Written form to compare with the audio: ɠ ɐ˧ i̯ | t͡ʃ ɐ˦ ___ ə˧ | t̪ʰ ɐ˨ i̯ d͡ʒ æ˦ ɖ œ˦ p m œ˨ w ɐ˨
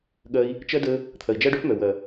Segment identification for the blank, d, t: d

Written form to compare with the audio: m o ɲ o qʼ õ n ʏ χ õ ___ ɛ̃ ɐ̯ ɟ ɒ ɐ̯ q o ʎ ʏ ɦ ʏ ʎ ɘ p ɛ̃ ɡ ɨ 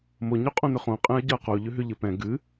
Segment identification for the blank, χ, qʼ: qʼ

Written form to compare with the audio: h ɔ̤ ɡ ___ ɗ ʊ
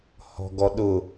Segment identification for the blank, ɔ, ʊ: ɔ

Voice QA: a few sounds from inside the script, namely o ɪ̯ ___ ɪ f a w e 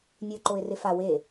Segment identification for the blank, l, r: r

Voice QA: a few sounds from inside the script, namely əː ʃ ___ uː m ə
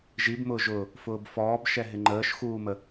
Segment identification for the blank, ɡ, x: x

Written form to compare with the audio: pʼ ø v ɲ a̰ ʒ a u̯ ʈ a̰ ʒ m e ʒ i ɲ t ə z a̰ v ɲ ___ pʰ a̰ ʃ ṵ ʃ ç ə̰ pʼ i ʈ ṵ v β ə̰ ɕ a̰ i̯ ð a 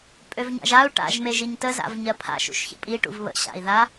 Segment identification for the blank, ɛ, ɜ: ɜ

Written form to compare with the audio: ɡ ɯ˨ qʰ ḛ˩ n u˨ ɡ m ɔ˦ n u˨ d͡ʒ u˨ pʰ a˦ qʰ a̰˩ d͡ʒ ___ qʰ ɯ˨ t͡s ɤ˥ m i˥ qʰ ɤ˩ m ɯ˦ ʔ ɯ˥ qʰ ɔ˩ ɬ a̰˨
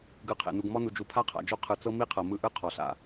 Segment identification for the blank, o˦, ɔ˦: o˦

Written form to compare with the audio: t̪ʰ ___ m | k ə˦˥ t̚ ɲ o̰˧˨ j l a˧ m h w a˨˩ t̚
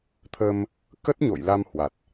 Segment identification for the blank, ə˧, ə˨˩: ə˧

